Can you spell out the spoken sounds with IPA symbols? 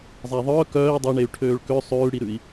zˤ æ ðˤ œː k œː i̯ dˤ e ɳ e y̯ ʈʰ øː ɭ k ø sˤ ʉː ɽ i ɾ ʉ i̯

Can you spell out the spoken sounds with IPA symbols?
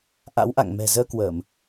ʔ a̰˧˥ w ʔ a̰˧˨ ŋ m ɛ̤˨˩ z əː˧ k w əː˧˩˨ m

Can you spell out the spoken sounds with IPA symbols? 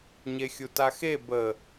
ɲ e xʲ u t a x e b ə

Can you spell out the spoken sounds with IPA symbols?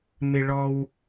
m ɪ˦ ɭ ɔ˦ w

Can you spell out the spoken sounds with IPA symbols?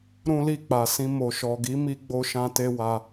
ɾ ũ˦ l i˦˨ k͡p a˨ s ĩ˧ m o˨ ʃ ɔ˨ ɡ i˨˦ m i˧ ɡ͡b o˧ ʃ ã˧ t e˧ w a˧

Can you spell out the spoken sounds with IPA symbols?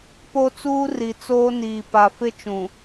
p o˦ t͡s uː˦ r i˨ t͡s oː˦ n iː˨ p a˨ f ɪ˦ t͡ʃ ũ˨

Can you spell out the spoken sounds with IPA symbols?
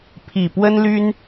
pʰ i˨˩ p w ə˥ n l y˥ n

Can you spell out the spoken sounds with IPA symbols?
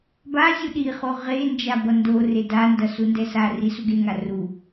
b a zʲ u ɗ i χ o ʁ e n d͡ʒ a b ʌ n d o r e d a n d ʌ s u n d ɛ s a r i s u ɡ e ŋ a r u

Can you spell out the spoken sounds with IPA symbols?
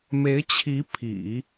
m e˧˥ ɪ̯ t͡ɕʰ i˧˥ pʰ ḭ˨˩˦

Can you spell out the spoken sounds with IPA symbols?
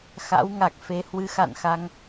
x a̰˧˥ w ŋ a˨˩ k̚ f e˨˦ h w ɨ˨˦ x a̰˧˨ n x a˧ ŋ

